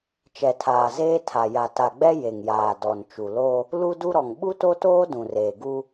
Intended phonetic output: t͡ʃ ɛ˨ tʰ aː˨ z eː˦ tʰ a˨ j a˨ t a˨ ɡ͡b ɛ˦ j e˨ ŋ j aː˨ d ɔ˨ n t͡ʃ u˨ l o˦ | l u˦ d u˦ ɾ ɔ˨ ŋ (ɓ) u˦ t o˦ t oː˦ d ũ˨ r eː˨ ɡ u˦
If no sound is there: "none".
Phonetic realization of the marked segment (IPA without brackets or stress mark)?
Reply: ɓ